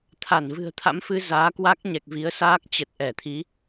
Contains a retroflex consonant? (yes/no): no